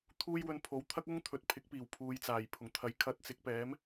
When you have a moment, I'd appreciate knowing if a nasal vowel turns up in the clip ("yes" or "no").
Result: no